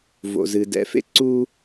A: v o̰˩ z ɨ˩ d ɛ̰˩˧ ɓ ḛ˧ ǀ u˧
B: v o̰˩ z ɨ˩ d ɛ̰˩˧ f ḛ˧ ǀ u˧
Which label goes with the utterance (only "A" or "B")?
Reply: B